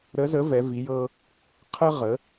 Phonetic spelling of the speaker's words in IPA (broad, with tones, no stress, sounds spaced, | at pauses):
ɾ ə˧˥ z ə˧˥ v ɛ˧˥ v i˧˥ j ɤ˥ | qʰ ə˥ ʁ ə˧˥